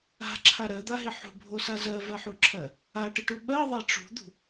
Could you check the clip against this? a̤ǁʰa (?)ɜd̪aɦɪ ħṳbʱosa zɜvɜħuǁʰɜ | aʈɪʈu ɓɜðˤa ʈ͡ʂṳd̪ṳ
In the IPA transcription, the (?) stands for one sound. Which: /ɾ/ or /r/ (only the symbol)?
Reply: ɾ